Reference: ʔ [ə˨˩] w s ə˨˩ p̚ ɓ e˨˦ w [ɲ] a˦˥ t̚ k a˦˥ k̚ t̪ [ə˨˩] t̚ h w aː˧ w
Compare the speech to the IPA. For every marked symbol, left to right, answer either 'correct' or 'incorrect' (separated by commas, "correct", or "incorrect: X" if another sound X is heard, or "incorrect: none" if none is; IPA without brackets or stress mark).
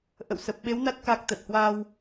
incorrect: ə̰˧˨, incorrect: n, correct